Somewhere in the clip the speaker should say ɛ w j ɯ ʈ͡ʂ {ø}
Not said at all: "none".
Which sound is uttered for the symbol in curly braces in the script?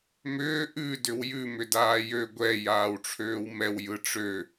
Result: ø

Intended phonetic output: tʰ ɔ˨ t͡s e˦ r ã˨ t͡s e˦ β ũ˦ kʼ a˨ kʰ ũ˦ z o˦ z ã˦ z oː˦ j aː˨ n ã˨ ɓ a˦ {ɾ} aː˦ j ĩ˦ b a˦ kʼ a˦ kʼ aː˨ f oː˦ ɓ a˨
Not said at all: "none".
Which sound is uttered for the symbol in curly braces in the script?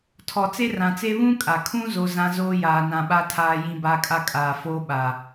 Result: tʰ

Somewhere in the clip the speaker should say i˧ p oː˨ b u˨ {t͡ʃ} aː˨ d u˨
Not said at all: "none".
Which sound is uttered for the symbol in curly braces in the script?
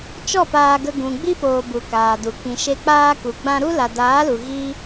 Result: k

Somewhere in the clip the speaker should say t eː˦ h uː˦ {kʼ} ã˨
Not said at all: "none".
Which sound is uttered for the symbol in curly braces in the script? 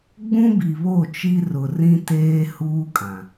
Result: kʼ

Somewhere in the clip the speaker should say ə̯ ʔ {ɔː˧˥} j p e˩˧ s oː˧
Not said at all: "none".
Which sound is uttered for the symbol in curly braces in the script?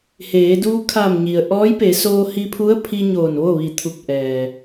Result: ɔː˧˥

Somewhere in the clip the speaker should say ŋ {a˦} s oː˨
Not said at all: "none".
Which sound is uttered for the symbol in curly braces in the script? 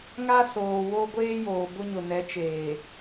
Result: a˦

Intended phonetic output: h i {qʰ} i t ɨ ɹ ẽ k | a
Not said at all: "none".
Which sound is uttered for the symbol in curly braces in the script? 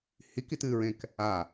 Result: k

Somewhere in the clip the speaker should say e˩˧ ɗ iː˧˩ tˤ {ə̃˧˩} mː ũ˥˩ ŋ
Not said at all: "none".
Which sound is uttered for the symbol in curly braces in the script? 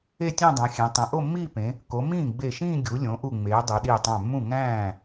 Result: æ̃˧˩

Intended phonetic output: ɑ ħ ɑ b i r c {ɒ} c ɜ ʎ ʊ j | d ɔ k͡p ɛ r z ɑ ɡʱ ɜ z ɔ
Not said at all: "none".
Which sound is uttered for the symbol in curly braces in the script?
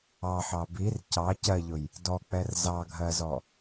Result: ɑ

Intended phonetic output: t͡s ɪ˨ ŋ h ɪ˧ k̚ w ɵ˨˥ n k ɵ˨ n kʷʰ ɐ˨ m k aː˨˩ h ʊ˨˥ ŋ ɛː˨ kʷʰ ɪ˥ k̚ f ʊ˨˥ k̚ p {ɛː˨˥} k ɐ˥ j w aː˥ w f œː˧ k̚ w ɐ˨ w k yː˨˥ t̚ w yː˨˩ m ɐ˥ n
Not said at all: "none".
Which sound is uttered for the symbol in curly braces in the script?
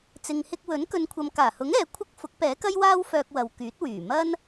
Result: ɛː˨˥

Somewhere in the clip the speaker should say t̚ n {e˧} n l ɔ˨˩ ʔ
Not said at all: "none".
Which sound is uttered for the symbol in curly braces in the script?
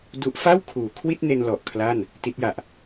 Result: e˧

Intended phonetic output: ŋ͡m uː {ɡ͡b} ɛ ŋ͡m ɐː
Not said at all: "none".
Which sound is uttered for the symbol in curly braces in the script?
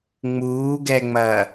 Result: ɡ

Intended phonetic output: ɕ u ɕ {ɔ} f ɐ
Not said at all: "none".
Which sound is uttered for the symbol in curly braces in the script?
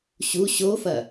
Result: o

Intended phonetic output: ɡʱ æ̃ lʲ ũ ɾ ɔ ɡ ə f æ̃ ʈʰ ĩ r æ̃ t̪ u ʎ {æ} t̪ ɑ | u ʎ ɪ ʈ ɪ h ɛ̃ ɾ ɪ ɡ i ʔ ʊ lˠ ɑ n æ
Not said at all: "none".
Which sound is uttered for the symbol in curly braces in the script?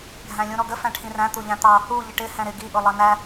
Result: æ̃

